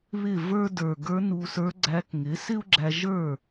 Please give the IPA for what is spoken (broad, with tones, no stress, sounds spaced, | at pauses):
β ɪ˥˩ v ə˞˥ d ə˞˨˩ ɡ ə˞˧˥ n u˧ s ə˞˧˥ ɡ͡ǀ æ˧˥ k ŋ ɪ˩˥ s ɪ˥ u̯ ɡ͡ǁ æ˧ ʒ ə˞˥˩